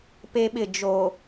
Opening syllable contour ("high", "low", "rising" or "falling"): high